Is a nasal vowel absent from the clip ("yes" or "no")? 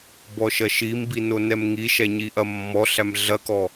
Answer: yes